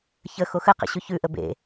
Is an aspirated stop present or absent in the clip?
absent